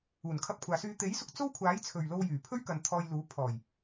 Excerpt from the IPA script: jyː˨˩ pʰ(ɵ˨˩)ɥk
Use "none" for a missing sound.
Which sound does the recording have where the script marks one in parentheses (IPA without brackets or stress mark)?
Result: ɵ˥